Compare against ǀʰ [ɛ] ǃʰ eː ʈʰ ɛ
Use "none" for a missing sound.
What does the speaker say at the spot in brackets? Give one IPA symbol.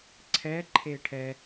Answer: ɛː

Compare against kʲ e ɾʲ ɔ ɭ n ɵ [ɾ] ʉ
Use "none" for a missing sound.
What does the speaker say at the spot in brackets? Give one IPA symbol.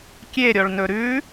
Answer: ɾ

